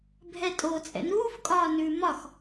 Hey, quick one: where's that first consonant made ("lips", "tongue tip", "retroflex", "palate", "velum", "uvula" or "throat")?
lips